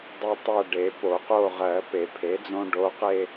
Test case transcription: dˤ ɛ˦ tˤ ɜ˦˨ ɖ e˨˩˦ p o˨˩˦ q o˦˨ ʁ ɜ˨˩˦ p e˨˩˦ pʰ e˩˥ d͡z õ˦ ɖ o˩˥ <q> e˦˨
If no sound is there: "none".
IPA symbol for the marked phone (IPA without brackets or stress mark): q